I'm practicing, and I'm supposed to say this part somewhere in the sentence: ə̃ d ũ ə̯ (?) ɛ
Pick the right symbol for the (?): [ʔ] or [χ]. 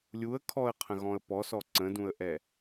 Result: ʔ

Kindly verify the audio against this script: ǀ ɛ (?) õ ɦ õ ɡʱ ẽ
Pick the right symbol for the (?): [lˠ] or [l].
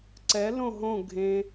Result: l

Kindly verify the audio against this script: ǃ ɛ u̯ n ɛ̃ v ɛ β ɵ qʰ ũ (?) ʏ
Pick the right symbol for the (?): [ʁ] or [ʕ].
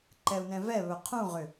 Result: ʁ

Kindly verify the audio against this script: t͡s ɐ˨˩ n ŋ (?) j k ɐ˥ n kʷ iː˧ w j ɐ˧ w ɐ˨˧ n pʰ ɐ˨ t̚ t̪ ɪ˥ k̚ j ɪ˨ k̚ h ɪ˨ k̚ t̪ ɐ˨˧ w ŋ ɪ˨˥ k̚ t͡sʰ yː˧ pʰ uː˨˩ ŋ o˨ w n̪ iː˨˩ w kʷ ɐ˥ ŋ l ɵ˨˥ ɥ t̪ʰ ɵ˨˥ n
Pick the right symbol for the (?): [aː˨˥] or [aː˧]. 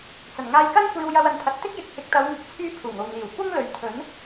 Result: aː˧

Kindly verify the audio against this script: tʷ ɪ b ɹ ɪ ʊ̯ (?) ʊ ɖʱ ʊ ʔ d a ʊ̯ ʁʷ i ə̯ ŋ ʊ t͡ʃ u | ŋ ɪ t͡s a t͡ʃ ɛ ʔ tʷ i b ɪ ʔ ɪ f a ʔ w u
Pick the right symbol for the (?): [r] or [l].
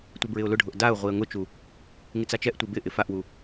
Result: l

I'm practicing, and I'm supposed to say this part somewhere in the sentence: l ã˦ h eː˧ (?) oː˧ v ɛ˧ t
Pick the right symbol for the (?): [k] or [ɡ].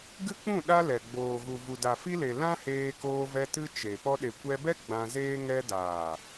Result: k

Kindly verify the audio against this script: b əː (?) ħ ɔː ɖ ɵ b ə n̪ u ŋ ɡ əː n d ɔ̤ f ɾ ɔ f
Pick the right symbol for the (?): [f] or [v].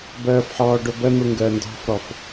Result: f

